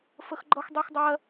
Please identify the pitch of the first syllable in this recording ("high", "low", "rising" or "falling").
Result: high